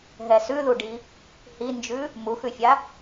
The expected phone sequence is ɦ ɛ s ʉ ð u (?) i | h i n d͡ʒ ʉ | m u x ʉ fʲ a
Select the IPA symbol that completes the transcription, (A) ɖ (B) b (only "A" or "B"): A